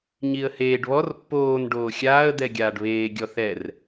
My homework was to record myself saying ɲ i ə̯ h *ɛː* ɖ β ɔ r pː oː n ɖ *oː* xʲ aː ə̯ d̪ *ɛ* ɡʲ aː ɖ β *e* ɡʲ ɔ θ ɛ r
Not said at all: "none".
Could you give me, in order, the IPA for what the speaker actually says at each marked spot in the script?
eː, oː, ɛ, eː

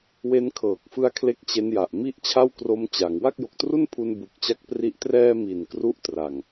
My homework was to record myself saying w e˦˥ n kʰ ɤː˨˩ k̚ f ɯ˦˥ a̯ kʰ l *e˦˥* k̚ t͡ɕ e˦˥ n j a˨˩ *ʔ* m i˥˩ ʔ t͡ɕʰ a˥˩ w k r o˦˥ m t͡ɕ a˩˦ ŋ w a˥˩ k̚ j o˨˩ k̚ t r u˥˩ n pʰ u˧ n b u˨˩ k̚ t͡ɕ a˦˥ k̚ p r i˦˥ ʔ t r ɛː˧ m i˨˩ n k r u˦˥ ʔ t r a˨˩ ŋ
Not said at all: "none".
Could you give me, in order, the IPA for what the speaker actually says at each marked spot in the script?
e˥˩, ʔ

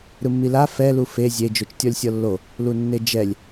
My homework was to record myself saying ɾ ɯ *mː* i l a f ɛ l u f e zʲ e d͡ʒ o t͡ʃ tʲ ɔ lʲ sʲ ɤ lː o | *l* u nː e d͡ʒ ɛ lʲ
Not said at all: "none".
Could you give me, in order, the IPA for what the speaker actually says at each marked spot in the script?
mː, l

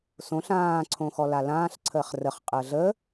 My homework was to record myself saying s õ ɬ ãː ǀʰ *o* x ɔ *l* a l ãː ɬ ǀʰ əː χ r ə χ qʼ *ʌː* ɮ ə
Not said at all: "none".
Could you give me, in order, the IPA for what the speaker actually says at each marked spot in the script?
õ, l, əː

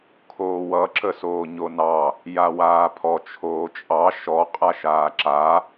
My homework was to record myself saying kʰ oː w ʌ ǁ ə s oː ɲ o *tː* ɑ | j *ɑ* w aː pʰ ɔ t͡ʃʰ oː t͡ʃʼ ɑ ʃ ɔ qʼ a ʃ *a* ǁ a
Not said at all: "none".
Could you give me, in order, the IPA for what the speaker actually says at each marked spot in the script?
n, a, aː

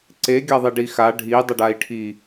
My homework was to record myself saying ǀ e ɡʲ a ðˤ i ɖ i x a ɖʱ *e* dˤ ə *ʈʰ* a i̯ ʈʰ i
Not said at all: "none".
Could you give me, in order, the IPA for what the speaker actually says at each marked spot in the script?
i, ɖ

